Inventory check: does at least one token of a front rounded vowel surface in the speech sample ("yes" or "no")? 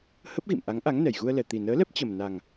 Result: no